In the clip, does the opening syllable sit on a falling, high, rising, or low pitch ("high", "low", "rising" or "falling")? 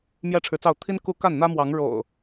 high